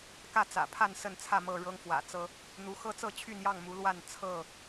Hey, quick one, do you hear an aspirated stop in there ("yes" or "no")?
yes